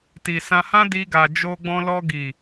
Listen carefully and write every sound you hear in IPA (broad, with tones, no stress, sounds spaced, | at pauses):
t i˨ s ã˧ h ã˦ d i˧ ɡ a˨ d͡ʒ o˧ ɡ͡b ɔ̃˧ l ɔ˧ ɡ i˨